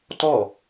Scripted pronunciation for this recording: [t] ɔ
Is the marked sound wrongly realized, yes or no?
no